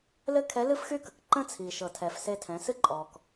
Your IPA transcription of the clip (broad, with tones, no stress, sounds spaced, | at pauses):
l ɘ˥ kʰ ɛ˧˥ l ɨ˥ f x y˥ k ə˩ k ǃ ə̃˥ t͡sʰ i˩ ʃ ɤ˩ tʰ ɛ˩ f s e˧ tʰ ɛ̃˩˧ s ɨ˥ ǃʼ ɔ˩ k